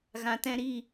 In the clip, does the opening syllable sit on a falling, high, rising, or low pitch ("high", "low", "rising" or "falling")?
low